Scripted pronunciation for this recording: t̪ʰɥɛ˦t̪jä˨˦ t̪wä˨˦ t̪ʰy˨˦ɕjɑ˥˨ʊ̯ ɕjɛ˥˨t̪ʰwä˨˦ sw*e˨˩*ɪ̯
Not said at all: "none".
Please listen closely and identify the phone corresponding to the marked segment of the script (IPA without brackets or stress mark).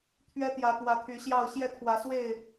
e˥˨